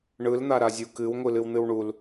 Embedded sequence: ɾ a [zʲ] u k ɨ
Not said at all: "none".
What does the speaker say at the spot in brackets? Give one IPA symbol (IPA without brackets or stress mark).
zʲ